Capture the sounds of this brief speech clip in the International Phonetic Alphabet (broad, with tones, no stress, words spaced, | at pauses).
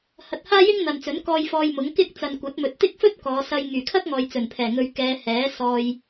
hɐ˧t̚haː˥jɪ˥ŋ n̪ɐ˨nt͡sɵ˨˥nkɔː˧j fɔː˧jmʊ˨˥ŋ kɪ˥k̚t͡sɐ˨n kʷɐ˨˥t̚mɵ˨t̚t̪ɪ˥k̚ fɵ˥t̚kɔː˨˧sɐ˧j ŋyː˨˩kʰɐ˥k̚ ŋɔː˨jt͡sɵ˨˩npʰɛː˨˩ŋɵ˨ɥ kɛː˨˧ hɛː˨˥sɔː˧j